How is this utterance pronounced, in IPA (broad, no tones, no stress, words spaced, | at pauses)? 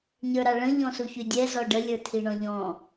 ɲə˞ɾɑɭə̃ ʎɔ̃suçydʲɛ zɔɖə lʲə˞tʰiɳɔ̃ʎɔ̃